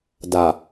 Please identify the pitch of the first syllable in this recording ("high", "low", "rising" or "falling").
low